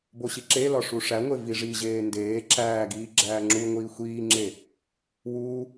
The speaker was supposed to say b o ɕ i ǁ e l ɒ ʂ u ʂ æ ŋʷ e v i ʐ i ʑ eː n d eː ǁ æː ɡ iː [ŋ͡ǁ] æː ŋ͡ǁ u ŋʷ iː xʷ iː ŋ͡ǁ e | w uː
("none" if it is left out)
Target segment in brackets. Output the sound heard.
ɡ͡ǁ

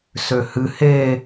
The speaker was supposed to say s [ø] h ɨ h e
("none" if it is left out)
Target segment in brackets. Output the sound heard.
ø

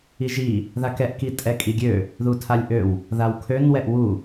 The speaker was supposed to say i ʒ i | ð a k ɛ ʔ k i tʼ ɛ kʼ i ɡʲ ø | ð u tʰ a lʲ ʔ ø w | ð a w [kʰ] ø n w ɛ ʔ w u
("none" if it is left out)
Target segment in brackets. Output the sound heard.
kʰ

